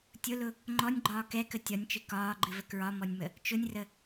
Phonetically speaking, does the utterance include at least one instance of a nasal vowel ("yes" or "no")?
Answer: no